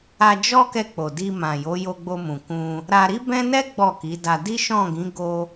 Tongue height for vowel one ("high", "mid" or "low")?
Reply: low